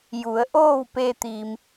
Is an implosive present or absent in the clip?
absent